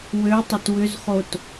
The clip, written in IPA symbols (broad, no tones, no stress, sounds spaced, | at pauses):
w ø tˤ ʏ t w ʏ z χ o t